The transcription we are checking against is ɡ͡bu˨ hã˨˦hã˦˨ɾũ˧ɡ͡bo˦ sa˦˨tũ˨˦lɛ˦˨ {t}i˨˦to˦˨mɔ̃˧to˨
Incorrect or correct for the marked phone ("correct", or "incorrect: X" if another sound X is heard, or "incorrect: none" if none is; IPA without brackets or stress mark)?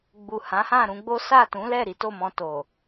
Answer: incorrect: ɾ